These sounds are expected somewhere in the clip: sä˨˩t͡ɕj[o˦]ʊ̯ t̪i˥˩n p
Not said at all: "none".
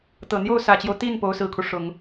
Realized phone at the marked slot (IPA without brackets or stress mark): o˦